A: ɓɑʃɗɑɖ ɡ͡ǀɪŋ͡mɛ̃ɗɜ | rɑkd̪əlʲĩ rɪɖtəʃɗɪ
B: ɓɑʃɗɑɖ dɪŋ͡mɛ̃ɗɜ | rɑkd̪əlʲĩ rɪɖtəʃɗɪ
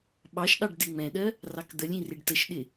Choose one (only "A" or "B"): B